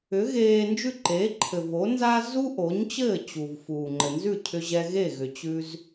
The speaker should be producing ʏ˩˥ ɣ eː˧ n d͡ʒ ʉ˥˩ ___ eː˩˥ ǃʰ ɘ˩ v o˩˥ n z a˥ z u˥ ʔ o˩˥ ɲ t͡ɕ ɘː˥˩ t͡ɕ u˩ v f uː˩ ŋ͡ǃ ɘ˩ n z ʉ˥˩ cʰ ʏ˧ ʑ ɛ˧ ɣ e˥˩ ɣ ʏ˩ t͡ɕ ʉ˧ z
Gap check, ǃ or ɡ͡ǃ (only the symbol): ǃ